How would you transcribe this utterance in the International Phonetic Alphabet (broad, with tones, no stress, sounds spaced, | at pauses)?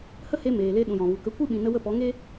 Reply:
h ə˦ h e˧ m eː˨ l e˧ ɗ ũ˨ j ɔ̃˨ v u˨ k ə˨˦ kʷ ɨ˦ ɓ ĩ˨ n ə˧ w ə˦˨ p ɔ˨˦ ŋ e˦